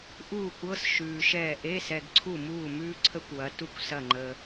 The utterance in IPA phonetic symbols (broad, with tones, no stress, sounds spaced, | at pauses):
ʔ uː˥˩ kʷ ɤ˧˥˧ s ʃ ʉː˨ ʃ ɛː˥˩ ʔ e˧˥˧ s ɛ˨ ɡ ǀʰ u˥˩ m uː˥˩ m ʉː˥ ǀʰ ə˥ kʷ w ɐ˩˥ t u˥˩ kʷ s ɐ˥˩ ŋ͡ǃ əː˨